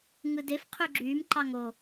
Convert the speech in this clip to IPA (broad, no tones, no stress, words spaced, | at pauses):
ŋɯdef qʰyɡ͡ǁyːm ǃɑŋo